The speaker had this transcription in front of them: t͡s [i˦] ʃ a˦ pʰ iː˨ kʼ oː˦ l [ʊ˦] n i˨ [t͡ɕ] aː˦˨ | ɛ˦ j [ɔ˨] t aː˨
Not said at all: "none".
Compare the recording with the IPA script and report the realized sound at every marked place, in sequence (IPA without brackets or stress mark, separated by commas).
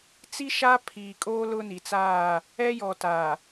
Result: i˦, ʊ˦, t͡s, ɔ˨